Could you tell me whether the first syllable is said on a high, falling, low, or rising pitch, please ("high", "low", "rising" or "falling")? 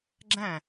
falling